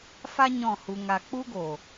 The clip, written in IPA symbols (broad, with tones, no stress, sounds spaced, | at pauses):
f a˦ ɲ ɔ̃˦˨ h u˧ ŋ a˧ k͡p u˦ ɡ o˨